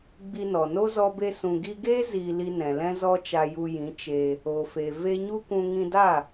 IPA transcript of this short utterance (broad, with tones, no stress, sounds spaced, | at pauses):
ɡ͡b i˧ n ɔ˨ n o˦ z ɔ˦ b e˦ s ũ˨ ɡ i˧ ɡ eː˦ z iː˧ l i˧ n ɛ̃˨ l ɛ̃˦ z ɔ˦ t͡ʃ a˧ j u˧ j ĩ˨˦ t͡ʃ e˧ | o˨ f e˨ v e˧ ɲ u˦ kʷ ũ˧ ŋ ĩ˧ d a˦˨